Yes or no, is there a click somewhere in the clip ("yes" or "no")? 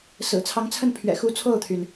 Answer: no